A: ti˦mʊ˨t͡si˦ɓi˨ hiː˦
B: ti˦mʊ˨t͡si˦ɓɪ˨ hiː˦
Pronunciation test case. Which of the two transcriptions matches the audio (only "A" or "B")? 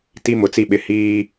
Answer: B